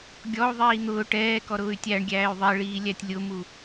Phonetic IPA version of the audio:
ɡʲ ɔ u̯ ðˤ iː n̪ ʊː ʈ ɛː k ɔ ɾ ʊː y̯ tʲ æ ɳ ɡʲ æː y̯ ðˤ ɛ ɭ iː lʲ æ tʲ lʲ ʊ m u

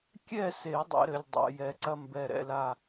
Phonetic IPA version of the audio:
kʲ ɛ˥˨ s e˨˩˦ dˤ ɛ̰˨˩˦ ɾ ɘ˨˩ lʲ dˤ a̰˨˩˦ j ɛ˨˩˦ ǀ ɐ˥ m b ɛ˨˩ ɾ ɛ̰˥˨ l a˥˨

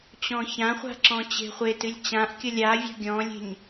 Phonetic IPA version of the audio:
t͡ɕ ɔ̃ ç ã χʷ a̤ ǁ ɔ̃ t͡ɕ e̤ χʷ e t ɨ lʲ t͡ɕ ã ʔ kʲ ʌ lʲ a vʲ ɔ̤ ɡʲ ɔ̃ lʲ e̤ ɲ

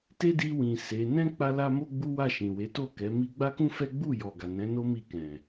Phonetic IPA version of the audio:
t e˦ d i˧ w ĩ˨ s e˨˦ n ɛ̃˦ k͡p a˧ l a˧ m o˦ ɡ͡b u˦ w a˦˨ ʃ ĩ˨ w e˨˦ t o˦˨ k ɛ˨˦ m i˦ ɡ͡b a˦ k ũ˦ f ɛ˦ ɡ͡b u˦˨ j ɔ˨ ɡ a˨ n ɛ̃˨˦ n o˦ m i˧ k ɛ̃˨

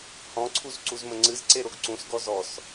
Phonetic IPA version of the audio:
h ɔ̃ ǀʰ u z ǀ u z m ə ŋ͡ǀ ɨ z ǀ e ɾ o ɡ ǀ ũ s ɡ ɔ z ɔ s

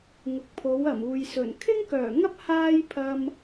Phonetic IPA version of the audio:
ŋ ʊ˨ k̚ pʰ o˨˥ w ɐ˨˩ m uː˨ j s ɵ˨˩ n kʰ ɪ˥ ŋ k œː˨˩ ŋ ɐ˥ p̚ h aː˥ j pʰ ɐ˧ m

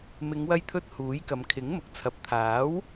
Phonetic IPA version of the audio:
m ɪ˨˧ ŋ w ɐ˧ j t̪ʰ ɵ˧ t̚ h uː˨˥ j k ɐ˨˧ m kʰ ɪ˨˥ ŋ m ʊ˨ k̚ t͡sʰ ɐ˨ p̚ t̪ʰ aː˨˥ w

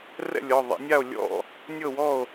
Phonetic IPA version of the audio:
r ɛ̰˥˩ lʲ ɔ˩˧˩ ðˤ a̰˨˦ nʲ a˥˩ o̯ lʲ ɔ̰˥˩ | nʲ ɤ˥˩ w ɔ˥˩ o̯

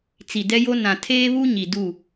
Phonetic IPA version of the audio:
t͡s i˨ d ɛ˦ j o˦ n ã˨ tʰ eː˦ β u˦ ɲ i˨ d u˦˨

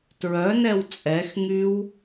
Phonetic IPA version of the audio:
t ɹ œ n ɛ w t͡sʼ ɛ x ŋ y w

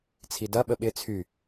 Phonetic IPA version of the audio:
t͡sʰ i d ɐ ɓ ə ɓ ɪ t͡sʰ y

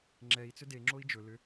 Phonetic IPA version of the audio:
ŋ͡ǁ ɛ i̯ t͡s ʏ d e ŋ͡ǁ o i̯ d͡ʒ ɵ l ʏ

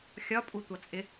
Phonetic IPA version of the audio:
xʲ ɒ pʼ u tʷ ʌ t͡sʼ ɪ

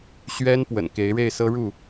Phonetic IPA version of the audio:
ɕ ɥ ɛ˦ n p w ə̰˨˩ n k e˨˦ ɪ̯ ɻ e˥˨ ɪ̯ s ɤ˦ ɻ u˥˨

